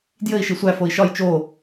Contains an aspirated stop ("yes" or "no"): no